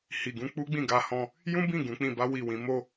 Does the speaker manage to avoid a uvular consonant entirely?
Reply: yes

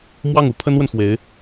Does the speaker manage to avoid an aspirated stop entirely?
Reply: no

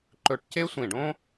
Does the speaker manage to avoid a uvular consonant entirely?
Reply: yes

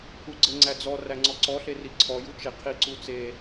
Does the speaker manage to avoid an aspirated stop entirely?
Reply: no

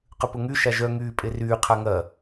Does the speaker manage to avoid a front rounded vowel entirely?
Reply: no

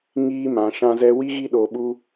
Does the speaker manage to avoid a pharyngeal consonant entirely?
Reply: yes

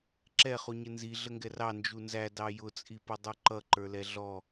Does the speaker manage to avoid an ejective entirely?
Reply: no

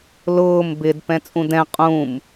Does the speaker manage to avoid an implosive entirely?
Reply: yes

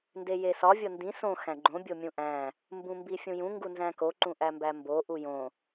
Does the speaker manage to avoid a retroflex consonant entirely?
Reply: yes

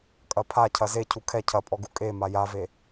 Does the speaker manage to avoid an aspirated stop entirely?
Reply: no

